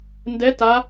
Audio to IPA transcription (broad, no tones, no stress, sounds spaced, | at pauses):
n d ɛ t a